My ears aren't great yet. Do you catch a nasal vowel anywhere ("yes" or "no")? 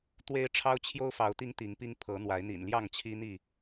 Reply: no